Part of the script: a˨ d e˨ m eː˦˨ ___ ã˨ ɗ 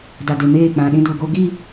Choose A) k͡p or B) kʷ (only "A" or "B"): A